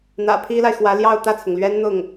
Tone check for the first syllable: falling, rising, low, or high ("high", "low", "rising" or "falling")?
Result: low